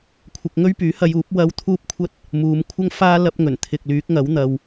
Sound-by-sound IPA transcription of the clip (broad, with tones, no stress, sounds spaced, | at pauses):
kʷʰ ɪ˧ k̚ ŋ ɵ˥ ɥ p yː˨˥ h ɐ˧ j uː˨˥ p̚ w ɐ˧ w t̪ʰ uː˥ p̚ kʷʰ ɐ˥ t̚ | m uː˨˧ m kʷʰ ɐ˥ ŋ f aː˥ l ɐ˥ p̚ ŋ ɵ˨˩ n t̪ʰ ɪ˨ k̚ l yː˨˥ k̚ ŋ ɐ˨˥ w n̪ ɐ˨ w